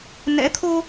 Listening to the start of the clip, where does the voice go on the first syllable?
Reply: rising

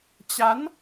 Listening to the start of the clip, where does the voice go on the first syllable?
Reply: rising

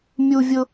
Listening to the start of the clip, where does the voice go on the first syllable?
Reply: high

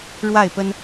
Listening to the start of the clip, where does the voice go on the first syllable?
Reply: falling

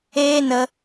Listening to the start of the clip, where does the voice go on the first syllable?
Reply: high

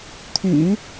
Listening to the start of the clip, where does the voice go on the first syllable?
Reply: low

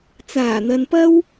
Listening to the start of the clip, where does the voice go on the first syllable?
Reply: low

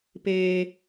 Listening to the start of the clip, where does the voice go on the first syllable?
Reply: high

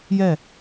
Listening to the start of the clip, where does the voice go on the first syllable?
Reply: falling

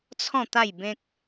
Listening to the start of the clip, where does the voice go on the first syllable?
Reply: falling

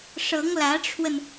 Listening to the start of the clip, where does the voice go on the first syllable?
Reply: rising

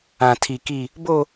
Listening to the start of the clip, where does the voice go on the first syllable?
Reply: high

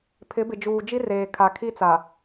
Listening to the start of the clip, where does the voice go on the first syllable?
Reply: rising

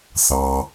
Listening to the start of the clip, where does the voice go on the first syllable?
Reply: low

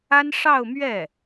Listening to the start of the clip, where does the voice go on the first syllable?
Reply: high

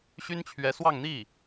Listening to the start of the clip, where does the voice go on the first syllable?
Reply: high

